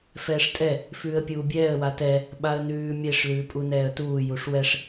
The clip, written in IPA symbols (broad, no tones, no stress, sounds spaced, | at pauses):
f ɛː ʂ tʼ ɛ | f ʉː ə̯ pʲ uː bʲ ɛː ə̯ w a t ɛ | ɓ a ə̯ n ʉː mʲ e ʂ l ʉː pʼ u n ɛː ə̯ t uː j u ʂ w ɛ ʂ